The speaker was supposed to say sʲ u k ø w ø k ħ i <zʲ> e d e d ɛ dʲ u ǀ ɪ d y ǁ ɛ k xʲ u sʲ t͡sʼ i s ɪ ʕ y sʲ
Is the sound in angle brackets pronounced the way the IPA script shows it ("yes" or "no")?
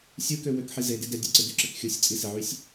no